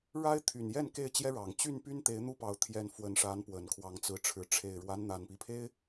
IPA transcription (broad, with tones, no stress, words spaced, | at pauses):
ɻa˦ɪ̯t̪ʰy˨˩njɛ˥˨n ke˥˨ɪ̯t͡ɕjɛ˦ ɻɑ˨˩ŋ t͡ɕy˥˨npy˦nt̪e˨˦ɪ̯ n̪u˦pɑ˨˦ʊ̯ t̪ʰjɛ˨˩n fwə˨˦n ʂa˨˦n pwə˨˩nkʰwɑ˨˦ŋ t͡sɹ̩˨˦ʈ͡ʂʰɻ̩˨˦ ʈ͡ʂʰe˨˩ɪ̯ɻwa˦n n̪a˨˩npi˦pʰe˦ɪ̯